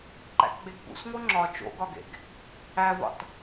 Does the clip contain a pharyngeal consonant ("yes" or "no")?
no